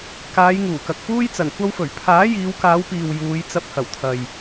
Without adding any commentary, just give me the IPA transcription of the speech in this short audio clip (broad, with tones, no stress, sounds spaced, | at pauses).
k aː˨˧ j ŋ uː˨˩ k ɐ˨ k̚ p uː˥ j t͡s ɐ˨˩ n kʷ ɐ˧ w f ɵ˨˩ ɥ pʰ aː˨˥ j iː˨˧ w k aː˨˧ w p iː˨ w j uː˨˧ j t͡s ɐ˧ p̚ h ɐ˨˩ w t̪ʰ ɐ˨ j